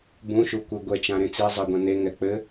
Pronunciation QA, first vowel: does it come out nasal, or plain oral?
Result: nasal